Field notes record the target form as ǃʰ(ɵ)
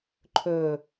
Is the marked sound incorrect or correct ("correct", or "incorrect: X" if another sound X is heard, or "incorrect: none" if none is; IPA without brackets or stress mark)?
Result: correct